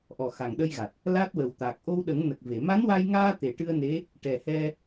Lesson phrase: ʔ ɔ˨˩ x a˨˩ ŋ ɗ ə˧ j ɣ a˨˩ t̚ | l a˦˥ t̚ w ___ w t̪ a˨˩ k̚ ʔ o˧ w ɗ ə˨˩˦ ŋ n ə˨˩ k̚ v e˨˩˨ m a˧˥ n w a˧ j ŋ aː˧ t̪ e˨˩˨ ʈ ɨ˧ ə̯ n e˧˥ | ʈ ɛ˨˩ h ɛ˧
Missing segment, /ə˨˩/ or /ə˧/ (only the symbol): ə˨˩